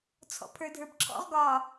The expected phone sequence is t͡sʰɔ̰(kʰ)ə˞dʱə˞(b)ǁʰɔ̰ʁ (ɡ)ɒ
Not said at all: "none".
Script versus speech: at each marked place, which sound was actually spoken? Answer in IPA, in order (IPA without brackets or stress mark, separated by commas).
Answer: pʰ, b, ɡ